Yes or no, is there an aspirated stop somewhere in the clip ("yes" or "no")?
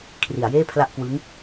yes